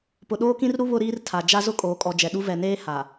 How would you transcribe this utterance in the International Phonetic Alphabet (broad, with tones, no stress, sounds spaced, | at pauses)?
p ʊ˨ ɗ oː˦ k ĩ˦ r ɾ u˦ β ʊ˦ ɾ iː˦ r tʰ a˨ d͡ʒ a˦ z ʊ˦ kʼ oː˨˦ kʼ ɔ˨ d͡ʒ ɛ˨ ɗ u˦ v ɛ˨ n eː˦ h a˨